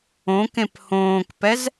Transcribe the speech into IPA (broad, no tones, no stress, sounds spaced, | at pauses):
õ k ẽ p h õː k p ɛ z